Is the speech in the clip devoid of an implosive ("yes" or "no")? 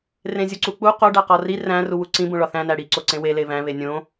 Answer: yes